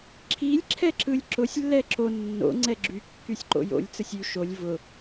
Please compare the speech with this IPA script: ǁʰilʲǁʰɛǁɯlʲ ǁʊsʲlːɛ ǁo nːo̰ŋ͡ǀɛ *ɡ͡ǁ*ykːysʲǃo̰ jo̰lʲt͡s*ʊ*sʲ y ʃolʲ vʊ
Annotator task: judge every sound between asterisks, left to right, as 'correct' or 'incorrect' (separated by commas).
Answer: correct, incorrect